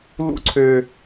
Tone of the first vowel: high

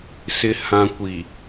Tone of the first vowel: low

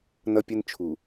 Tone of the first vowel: high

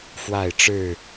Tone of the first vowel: falling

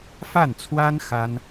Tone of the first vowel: falling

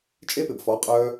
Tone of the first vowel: high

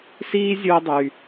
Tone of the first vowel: high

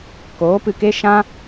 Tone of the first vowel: rising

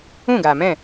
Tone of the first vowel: falling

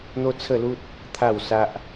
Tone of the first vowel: high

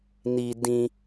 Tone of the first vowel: low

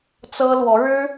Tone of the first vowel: high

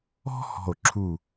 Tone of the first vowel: high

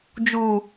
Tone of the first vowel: high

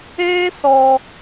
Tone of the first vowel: high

